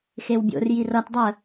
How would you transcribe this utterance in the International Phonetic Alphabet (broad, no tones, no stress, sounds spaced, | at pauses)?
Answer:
x e w bʲ o̰ r j i r ʌ t dˤ ə